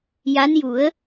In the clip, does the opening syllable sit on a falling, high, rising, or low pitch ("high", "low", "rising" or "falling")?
rising